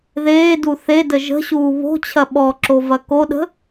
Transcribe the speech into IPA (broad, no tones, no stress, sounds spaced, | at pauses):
ð eː d u θ e d ə ʒ ə̤ ɕ uː β o̤ t͡ɕʰ ɐ ɓ ɔ ǁ o v ɐ k o ɗ ə̤